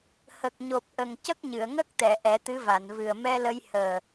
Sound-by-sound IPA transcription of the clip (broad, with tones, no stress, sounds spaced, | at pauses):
h ə˨˩ k̚ ɲ o˨˩ p̚ ʔ ə˨˩ ŋ c ə˦˥ k̚ ɲ ɨ˨˩˨ ə̯ ŋ ə˦˥ k̚ t̪ ɛ˨˩˨ ʔ ɛ˨˩˦ t̪ ɨ˧˥ v a˨˩˨ n v ɨ˨˩ ə̯ m ɛ˧ l ə˧ j h əː˨˩